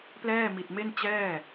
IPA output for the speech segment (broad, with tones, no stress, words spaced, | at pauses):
plɛː˥˩ mi˨˩t̚ me˥˩nt͡ɕɛː˥˩